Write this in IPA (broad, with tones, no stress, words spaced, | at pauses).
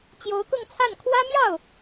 t͡ɕjo˧˥ʊ̯kʊ˥˧ŋt͡sʰa˥˩n kʰwä˥mjɑ˥˩ʊ̯